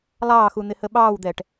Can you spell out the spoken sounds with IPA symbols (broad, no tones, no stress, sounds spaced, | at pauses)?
lˠ ɑː x u n̪ ɪ h ə ɓ ɑː w d̪ ɛː ʈ